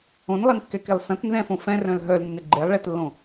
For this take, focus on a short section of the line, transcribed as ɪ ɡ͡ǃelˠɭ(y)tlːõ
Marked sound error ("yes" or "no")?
yes